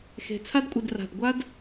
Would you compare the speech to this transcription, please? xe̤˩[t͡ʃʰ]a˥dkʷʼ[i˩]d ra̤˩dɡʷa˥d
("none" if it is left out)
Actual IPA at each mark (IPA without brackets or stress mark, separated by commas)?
t͡sʰ, i˩